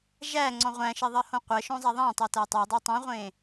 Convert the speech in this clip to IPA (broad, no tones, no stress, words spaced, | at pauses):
ʒæŋ͡ǀɔ̃ ʁʷæ̃ʃeðˤɜhõ qʷɜʃõzˤæ ðˤæ̃tˤɜtæ tˤodˤe tˤũʁʷẽ